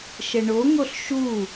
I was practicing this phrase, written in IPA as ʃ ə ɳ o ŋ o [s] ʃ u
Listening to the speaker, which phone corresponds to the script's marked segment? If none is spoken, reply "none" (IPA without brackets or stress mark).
ɬ